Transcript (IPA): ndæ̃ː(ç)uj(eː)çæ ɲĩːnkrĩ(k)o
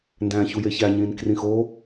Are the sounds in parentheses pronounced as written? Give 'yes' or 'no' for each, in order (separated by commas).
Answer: yes, no, no